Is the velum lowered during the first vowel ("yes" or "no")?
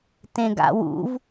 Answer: yes